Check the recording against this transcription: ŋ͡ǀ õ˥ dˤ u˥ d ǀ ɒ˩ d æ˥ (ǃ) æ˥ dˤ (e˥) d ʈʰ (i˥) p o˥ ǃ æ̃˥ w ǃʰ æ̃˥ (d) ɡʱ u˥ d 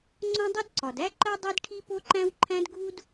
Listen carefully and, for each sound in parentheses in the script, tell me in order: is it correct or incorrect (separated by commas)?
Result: correct, correct, correct, correct